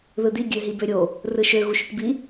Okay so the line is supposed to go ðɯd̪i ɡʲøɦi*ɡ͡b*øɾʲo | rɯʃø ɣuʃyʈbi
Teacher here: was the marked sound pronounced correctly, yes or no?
no